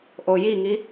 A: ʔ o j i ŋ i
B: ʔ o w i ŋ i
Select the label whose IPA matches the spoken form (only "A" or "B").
A